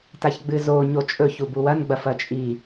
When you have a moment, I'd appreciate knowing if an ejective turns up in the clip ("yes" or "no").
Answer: yes